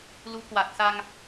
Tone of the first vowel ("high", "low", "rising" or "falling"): rising